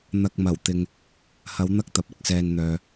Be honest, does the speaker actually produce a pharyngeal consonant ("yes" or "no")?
no